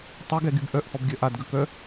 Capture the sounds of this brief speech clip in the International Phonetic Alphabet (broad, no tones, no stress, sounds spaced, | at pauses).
tˤ ø ɡ ɛ ɡ y b ʔ œ ʔ h ɔ b ɡʲ œ ʔ a d ɡ ə k œ